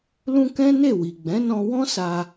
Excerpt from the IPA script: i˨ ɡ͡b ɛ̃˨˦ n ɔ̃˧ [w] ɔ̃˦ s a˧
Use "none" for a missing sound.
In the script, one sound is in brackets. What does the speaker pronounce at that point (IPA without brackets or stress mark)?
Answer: w